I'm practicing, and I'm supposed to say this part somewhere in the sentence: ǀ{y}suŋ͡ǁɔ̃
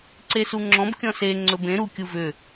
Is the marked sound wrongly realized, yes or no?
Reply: yes